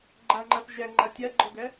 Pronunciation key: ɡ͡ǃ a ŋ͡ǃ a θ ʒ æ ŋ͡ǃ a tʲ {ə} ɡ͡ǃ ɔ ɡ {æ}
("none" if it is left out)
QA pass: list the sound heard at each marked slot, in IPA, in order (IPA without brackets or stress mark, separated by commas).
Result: a, æ